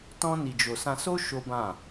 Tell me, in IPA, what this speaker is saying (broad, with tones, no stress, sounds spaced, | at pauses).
t ɔ̃˦ n i˧ d͡ʒ o˧ s ã˧ s o˦ ʃ o˦ b ã˦˨